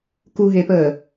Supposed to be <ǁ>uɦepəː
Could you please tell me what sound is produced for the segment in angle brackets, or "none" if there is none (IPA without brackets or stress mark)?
k